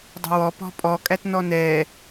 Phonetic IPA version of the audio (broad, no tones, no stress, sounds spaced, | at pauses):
dˤ ə̤ w ɔ p ɔ̤ pʼ ɔ kʼ æ t n ɔ n ɛ